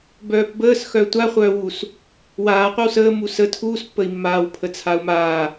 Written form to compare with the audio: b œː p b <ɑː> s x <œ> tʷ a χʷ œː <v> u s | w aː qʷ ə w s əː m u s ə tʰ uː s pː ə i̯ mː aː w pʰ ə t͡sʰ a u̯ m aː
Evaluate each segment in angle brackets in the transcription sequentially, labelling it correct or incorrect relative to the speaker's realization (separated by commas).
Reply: incorrect, correct, incorrect